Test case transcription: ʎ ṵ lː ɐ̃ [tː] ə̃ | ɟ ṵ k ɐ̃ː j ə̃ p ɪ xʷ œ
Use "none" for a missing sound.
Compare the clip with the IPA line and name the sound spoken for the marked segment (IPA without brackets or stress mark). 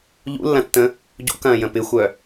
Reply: tː